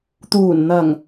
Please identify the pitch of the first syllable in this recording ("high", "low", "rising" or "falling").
low